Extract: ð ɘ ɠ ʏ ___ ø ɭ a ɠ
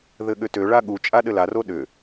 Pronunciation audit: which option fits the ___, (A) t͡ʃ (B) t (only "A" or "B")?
B